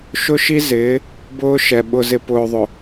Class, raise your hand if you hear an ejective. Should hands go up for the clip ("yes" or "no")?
no